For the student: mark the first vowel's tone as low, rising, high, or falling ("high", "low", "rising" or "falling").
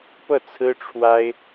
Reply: falling